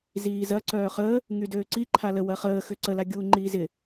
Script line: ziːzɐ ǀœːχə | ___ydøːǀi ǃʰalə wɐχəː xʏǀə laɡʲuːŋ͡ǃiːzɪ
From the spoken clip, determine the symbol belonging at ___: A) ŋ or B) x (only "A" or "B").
A